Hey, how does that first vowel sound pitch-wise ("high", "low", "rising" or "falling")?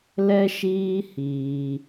high